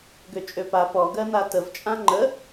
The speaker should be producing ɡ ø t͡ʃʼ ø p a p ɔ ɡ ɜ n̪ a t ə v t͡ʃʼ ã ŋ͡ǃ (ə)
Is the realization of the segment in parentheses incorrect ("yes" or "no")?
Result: no